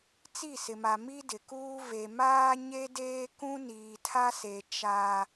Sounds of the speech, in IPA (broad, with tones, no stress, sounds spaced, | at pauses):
t͡s i˦˨ s ɪ˨ m a˨ m i˦ d ɪ˨ k uː˦ v e˨ m aː˦ ɲ e˦ d eː˦ k ũ˦ n iː˨ tʰ a˦ s e˨ t͡ʃ a˦